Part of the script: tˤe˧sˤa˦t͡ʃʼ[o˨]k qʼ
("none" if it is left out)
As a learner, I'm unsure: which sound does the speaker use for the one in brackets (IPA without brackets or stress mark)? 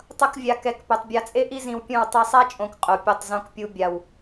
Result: õ˨